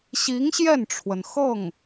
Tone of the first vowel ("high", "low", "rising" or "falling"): rising